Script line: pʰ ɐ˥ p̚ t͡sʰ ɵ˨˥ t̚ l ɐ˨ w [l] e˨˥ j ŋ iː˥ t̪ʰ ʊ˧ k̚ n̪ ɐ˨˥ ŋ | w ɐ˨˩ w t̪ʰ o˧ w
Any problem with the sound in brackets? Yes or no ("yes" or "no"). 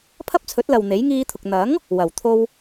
yes